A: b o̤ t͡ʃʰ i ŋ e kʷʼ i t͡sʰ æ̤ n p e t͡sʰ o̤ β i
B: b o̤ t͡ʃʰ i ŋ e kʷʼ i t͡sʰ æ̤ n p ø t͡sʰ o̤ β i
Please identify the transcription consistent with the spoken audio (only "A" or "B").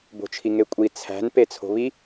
A